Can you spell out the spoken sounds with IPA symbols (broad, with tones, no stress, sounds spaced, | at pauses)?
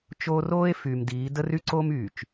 t͡ʃ oː˦ r oː˦ e̯ f yː˨ m d iː˨˦ d ə˦ r y˦ ǀ oː˦ m yː˨ t͡ʃ